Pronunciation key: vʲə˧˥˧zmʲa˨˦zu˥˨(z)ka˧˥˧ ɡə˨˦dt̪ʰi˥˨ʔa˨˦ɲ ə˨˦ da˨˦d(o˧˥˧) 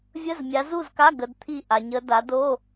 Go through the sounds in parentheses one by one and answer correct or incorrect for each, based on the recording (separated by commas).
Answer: correct, correct